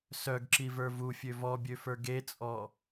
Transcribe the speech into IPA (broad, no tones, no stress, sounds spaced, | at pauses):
s œ ɡ ǁ i v ə˞ v u fʲ ø v ɔ bʲ ø f ə˞ ɡ e t͡sʼ ɔ